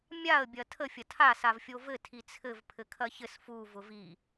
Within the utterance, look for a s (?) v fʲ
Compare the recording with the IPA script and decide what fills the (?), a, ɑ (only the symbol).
a